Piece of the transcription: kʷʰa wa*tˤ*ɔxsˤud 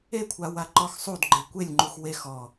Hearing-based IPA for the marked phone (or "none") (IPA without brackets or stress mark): ǃ